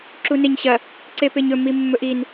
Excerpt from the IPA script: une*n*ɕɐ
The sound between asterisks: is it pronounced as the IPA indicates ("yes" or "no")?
no